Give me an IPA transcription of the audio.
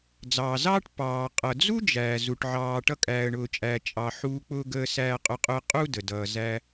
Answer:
d͡z ɑː˩ z ɑː˥ ʈ p ɑː˩ qʼ ʌ˩ d͡z u˦ d͡ʒ æː˩ z u˩ ʈ ʕ ɑː˨ ʈ ʌ˦ kʼ æː˨ ə̯ ɳ ʊː˨ t͡ʃʼ æː˨ t͡ʃʼ ɑ˨ ħ uː˦ k͡p ʊː˥ ɡ əː˥ s æː˥ qʼ ʊ˥ qʼ ʊ˦ ə̯ qʼ u˥ d ə˩ d ʌː˨ z æ˦

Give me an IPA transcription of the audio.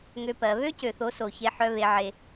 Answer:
ŋ ø˦ p ɜ˨˦ β ø˦ c ø˨ θ o˨˦ s o˨ ç e˦ ħ œ˦ β e˦ ʕ e˦

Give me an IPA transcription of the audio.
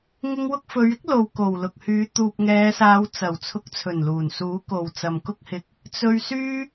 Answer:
ŋ ɪ˧ ŋ w ʊ˧ k̚ f ɵ˨˧ ɥ ɪ˥ k̚ l o˨ w k o˨˩ w l ʊ˨ k̚ h yː˨˧ t̪ uː˨ p̚ ŋ ɛː˨˧ s aː˨˧ w t͡s ɐ˨˩ w t͡sʰ ʊ˨˥ k̚ t͡sʰ ɵ˨˩ n l uː˨˩ n s uː˨˥ k o˨ w t͡s ɐ˨ m k ʊ˥ k̚ h ɪ˧ k̚ | t͡s ɵ˧ ɥ s yː˥

